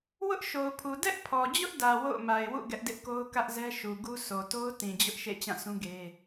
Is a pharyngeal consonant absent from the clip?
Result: yes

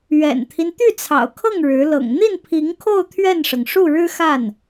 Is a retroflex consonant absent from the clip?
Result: no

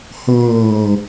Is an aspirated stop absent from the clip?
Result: yes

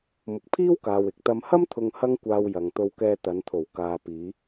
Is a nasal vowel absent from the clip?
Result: yes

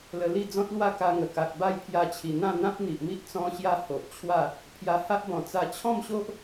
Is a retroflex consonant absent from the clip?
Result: yes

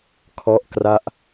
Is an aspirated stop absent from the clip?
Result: no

